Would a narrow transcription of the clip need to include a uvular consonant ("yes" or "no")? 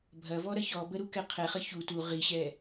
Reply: yes